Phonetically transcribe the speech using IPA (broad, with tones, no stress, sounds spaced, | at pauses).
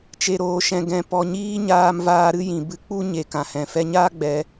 t͡ʃ e˨ ɾ oː˨ ʃ ɛ̃˨ ɡ ɛ̃˨ p ɔ˨ ɲ iː˦ ɲ aː˧ m v aː˧ ɾ ɨ˦ j ĩ˨ b ɨ˧ k͡p u˦ ɲ e˨ k ã˨ h ɛ̃˨ f ɛ˧ ɲ aː˦ ɡ͡b ɛ˨˦